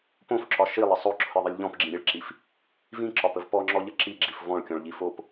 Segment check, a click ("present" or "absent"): present